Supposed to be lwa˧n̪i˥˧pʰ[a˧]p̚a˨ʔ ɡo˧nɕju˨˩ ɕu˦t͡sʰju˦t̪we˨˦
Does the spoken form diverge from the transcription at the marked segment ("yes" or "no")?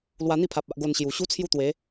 yes